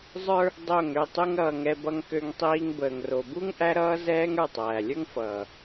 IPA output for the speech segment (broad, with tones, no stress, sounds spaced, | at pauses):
zˤ ə˞˧ | dˤ o˦˨ ŋ ø˦˨ tˤ u˦ ŋ ɾ ʌː˧ ŋ ɛ˧ b ʌ˦ ŋ k ø˦ ŋ tˤ iː˦ ŋ b əː˨ ŋ r o˨ b u˦ ŋ ʔ æ˦ ɾ ʌː˦ z ɛː˦ ŋ ə˞˦˨ tˤ æː˨ lʲ ə˞˦ ŋ f ʌː˨